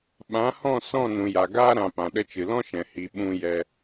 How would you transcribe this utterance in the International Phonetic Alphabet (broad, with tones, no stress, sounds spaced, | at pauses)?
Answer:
ɓ ã˨˦ h ɔ̃˦˨ s ɔ̃˦˨ n ũ˨ j a˨ ɡ aː˦ ɾ ã˨ p ã˨ ɗ ə˧ t͡ʃ ɨ˨ l ɔ̃˦ ʃ ɛ̃˨ h i˨ ɓ ũ˦ j ɛ˧